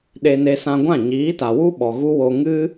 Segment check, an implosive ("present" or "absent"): present